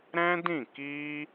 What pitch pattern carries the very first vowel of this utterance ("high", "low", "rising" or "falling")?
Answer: high